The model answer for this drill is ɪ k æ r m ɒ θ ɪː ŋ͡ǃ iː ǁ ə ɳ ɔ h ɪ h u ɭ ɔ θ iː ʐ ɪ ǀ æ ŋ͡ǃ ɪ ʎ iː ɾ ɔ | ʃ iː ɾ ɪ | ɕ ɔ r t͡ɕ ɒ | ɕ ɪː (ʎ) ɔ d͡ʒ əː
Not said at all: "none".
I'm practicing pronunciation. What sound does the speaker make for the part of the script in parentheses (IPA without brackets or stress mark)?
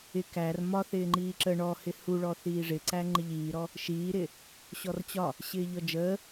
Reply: ʎ